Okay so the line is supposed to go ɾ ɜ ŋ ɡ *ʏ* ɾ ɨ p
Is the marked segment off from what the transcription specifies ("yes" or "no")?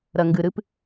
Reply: yes